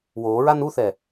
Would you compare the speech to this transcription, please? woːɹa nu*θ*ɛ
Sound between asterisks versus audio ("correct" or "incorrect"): correct